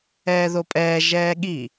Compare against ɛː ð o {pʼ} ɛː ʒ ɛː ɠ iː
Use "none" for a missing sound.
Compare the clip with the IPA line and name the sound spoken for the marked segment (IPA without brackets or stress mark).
pʼ